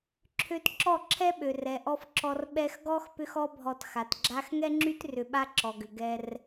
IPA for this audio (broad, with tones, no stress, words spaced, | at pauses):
ǁʰø˧tǁɔ˦˨ ǁʰɛ˦ɓø˨r ɛ˨ʔɔ˧f ǁɔ˧r ɓɛ˧xɡɔ˦x pʏ˦xɔ˦bʱɔ˧t xa˨t ɡ͡ǁa˦x ŋɛ˦ŋ͡ǁy˦t rʏ˧ɓa˦ǁɔ˨ɡʏ˨ ɡɛ˧r